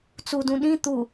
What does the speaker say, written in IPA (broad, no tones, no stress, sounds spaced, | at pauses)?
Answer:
t͡s u d ũ ɗ ĩ t̪ u